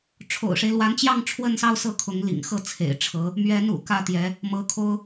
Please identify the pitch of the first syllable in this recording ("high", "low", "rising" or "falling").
low